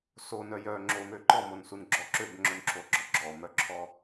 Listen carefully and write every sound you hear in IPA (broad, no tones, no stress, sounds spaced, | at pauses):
s o n œ j œ ŋ͡ǁ o m ø ǃ ɔ m o n s u n ɡ͡ǁ ɔ ǁ ø b ŋ͡ǁ œ n ǁʰ o ɡ͡ǁ ɔ ɡ͡ǁ ɔ m œ ǁʰ ɔ